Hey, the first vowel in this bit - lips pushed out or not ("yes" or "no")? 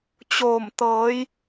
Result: yes